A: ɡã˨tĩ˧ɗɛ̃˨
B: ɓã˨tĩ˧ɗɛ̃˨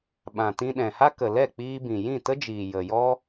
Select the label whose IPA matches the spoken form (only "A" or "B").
B